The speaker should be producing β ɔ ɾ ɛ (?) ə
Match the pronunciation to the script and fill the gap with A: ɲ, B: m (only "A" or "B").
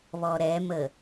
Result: B